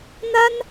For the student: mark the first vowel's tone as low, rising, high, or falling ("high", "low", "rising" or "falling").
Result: high